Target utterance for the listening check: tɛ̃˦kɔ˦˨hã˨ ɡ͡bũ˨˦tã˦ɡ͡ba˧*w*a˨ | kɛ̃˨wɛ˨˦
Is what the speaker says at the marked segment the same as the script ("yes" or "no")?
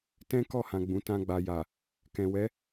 no